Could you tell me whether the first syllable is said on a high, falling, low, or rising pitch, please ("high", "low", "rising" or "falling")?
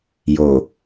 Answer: low